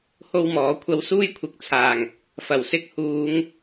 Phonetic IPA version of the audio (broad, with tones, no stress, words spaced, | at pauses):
ho˥wmɔː˨˥kʷʰɐ˥w suː˥jkʷʰɪ˨˥k̚t͡sʰaː˨˩ŋ | fɐ˨˩w sɪ˥k̚huː˨˧ŋ